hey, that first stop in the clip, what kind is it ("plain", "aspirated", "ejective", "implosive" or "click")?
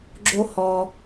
click